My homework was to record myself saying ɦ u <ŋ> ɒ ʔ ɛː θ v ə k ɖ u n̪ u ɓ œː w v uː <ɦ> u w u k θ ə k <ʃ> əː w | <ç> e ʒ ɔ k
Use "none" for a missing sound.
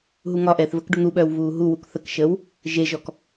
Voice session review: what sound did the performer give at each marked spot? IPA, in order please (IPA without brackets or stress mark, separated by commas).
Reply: ŋ, ɦ, ʃ, ʒ